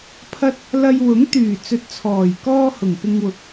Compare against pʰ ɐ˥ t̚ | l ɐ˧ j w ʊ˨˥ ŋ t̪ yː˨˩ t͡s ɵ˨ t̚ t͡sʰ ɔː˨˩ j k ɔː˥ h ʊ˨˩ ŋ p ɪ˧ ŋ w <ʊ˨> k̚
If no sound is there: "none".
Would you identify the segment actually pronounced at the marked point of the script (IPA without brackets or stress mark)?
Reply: ʊ˨